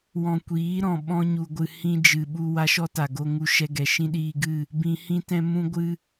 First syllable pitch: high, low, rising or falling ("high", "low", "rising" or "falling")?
low